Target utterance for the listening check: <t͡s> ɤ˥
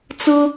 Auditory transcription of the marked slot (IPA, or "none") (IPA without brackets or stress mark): t͡s